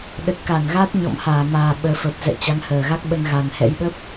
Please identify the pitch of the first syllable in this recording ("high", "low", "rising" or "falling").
low